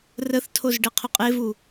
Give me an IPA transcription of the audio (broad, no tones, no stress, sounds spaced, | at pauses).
r ə θ tʰ o z ɖ e qʰ ɵ qʼ e v u